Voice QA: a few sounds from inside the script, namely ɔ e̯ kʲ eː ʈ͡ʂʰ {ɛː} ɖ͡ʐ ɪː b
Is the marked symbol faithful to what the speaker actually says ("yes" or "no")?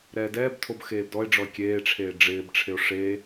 no